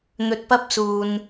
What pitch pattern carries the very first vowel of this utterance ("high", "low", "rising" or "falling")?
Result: low